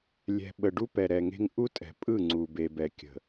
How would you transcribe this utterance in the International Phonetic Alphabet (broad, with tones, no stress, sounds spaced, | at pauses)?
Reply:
lʲ ɛ̤˨ ɓ ə˨ ɖ u˦ p ɛ˨ ɾ ɛ˨ ŋ e̤˦ ŋ ʔ u˦ tʼ ɛ̤˨ pʼ ɯ˦˨ ŋ͡ǀ u˨ b e˨ b ɛ˨ kʲ ə̤˨